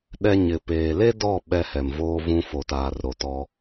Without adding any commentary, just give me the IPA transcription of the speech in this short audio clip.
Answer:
ɗɛ˦ ɲɪ˨ peː˨le˦dɔ˦˨ ɓɛ˦hɛ˨mvoː˦vũ˦ fo˨taː˨rɾo˨tɔ˦

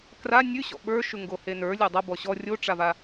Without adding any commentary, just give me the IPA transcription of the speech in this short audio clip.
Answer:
kra nʲʉɕɔ̰ ɓə˞ʃʉŋɡohe nə˞lʲe dˤɐbɔ ɕɔ rʲoʈ͡ʂava

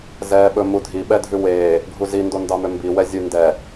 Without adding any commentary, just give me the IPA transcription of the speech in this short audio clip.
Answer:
zɛːɓɵmu dʱi ɓɛdʱʉweː | ɡʱuzi ndondɑmømbi wɛzʲʉndɛ

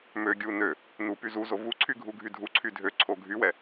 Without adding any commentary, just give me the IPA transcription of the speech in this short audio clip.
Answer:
mø ɡʲu nø | nupy zuzo vuǀʰy ɡʱuɡʱydʱuǀʰy dʱøǀʰo ɡʱywɛ

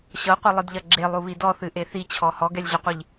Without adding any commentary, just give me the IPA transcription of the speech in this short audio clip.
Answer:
ɕɤqʷɘlˠɨdʎɐ ɡ͡ǁelˠuβi dɔθɨʔe θit͡ɕʰɔ hɔɡɛlʲʑɐqʷiʎ

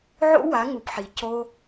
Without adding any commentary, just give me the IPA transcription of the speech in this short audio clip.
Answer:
ʕo̰˦wa˨˦ŋu˨pħi˨ co˦

